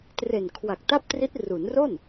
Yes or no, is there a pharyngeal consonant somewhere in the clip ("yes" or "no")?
no